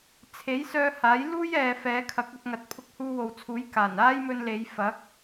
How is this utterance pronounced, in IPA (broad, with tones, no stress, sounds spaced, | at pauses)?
t͡sʰ e˨˥ j s œː˧ h aː˨˥ j l uː˥ j ɛː˨ f ɛː˨˥ kʰ ɐ˨˥ k̚ ɵ˧ t̚ ŋ ɐ˨˥ t̚ pʰ ʊ˧ k̚ h uː˧ w o˨ w t͡sʰ uː˨˥ j k aː˨˩ n aː˥ j m ɵ˧ n l e˨˧ j f ɐ˨˥ k̚